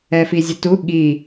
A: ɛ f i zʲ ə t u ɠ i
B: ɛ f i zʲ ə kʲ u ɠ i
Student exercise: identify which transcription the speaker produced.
A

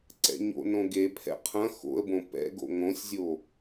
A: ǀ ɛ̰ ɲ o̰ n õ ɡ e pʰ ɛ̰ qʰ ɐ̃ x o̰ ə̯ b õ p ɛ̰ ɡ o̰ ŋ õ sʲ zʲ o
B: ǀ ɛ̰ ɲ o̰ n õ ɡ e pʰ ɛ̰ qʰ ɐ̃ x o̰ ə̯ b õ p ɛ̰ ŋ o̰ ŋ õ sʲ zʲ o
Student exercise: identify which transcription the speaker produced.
A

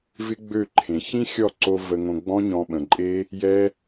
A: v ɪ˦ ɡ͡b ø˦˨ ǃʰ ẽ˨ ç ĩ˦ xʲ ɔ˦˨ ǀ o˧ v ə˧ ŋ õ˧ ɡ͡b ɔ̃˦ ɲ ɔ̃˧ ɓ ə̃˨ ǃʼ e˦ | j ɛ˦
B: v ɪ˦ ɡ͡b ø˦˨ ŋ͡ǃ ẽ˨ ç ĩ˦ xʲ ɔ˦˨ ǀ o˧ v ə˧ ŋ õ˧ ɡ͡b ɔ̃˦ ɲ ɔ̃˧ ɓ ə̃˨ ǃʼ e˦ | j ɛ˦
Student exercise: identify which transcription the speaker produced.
A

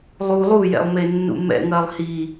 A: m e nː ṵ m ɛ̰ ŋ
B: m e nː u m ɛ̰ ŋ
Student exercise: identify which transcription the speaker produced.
A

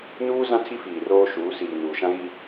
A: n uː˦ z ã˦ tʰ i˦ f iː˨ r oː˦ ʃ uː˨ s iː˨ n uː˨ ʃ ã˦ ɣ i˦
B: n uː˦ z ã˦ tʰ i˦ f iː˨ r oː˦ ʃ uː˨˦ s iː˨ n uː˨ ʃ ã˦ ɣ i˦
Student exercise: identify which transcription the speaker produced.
B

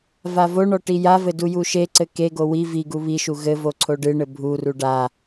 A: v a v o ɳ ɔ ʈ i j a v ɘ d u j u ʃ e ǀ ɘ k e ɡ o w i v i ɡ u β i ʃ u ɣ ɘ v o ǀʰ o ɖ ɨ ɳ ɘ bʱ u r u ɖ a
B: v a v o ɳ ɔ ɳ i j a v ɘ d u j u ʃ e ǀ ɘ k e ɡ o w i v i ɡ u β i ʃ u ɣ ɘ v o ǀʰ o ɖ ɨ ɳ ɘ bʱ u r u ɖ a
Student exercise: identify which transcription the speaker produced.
A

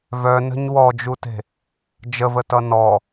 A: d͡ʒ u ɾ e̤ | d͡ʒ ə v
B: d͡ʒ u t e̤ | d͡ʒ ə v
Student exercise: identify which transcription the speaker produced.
B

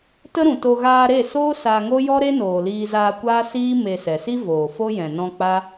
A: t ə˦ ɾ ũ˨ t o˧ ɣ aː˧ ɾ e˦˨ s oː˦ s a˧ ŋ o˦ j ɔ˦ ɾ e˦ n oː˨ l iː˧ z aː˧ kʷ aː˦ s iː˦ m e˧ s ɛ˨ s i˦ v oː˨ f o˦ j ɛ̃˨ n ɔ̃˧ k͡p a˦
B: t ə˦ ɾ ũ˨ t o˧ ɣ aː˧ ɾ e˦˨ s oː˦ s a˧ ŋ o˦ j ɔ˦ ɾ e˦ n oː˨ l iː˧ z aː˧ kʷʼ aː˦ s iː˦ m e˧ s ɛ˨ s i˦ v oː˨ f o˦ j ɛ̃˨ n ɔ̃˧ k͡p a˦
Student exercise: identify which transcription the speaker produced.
A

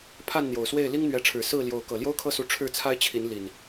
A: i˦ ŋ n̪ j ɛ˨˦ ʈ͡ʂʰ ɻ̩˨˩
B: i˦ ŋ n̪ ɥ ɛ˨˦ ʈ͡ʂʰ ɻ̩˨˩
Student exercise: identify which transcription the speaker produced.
B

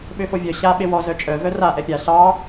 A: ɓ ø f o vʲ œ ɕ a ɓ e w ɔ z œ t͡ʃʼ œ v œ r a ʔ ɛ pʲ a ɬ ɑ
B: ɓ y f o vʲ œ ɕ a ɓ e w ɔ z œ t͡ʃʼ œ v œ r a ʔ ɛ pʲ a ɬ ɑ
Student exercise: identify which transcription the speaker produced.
A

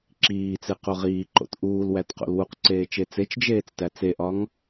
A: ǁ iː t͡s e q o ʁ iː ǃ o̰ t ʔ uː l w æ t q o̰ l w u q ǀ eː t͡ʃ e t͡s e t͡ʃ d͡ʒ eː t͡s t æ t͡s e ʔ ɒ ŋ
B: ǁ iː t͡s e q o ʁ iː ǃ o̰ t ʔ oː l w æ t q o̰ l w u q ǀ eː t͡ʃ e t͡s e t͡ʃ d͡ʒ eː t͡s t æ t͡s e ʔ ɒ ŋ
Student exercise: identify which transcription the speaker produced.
A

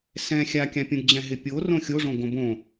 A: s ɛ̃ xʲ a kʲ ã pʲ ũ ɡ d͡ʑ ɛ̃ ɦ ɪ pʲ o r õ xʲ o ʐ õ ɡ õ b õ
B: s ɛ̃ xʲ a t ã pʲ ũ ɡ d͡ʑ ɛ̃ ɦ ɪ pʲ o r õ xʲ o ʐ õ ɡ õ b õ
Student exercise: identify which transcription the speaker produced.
A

